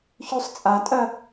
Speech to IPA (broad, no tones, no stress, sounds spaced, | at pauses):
ç ʉ sˤ t͡sʼ a tʼ ɜ